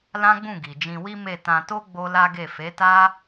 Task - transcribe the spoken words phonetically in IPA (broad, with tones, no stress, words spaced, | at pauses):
lã˦ɡ͡bũ˦˨ɡi˨ d͡ʒĩ˧wi˦ me˦˨ tã˧to˦ ɡ͡bo˦la˦ɡe˦˨ fe˨˦ta˦